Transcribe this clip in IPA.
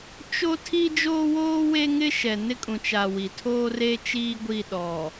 t͡ʃo˦ tʰi˦d͡ʒoː˦woː˦ we˦ŋɪ˦ʃɛ˨ nɪ˦kʼũ˨ t͡ʃa˨ wi˨tʰoː˦re˦ t͡ʃiː˦ɡʷi˦˨ ɗɔ˨

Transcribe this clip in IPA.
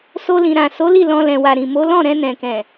so˧lĩ˨ɾã˨ so˨˦ li˦˨lɔ̃˧ lɛ̃˨wa˨ɾĩ˨ mo˨˦lɔ̃˦˨ ɾɛ̃˧nɛ̃˨kɛ̃˨

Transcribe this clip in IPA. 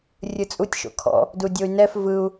rʲɯt͡sʼutʲ ʃo̰kʰɔ̰ | dudʲoy̯nɛf vɯu̯

